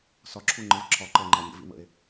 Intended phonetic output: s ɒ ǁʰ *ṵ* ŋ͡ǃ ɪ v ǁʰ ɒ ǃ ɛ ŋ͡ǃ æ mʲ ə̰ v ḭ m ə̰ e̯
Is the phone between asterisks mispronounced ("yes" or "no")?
yes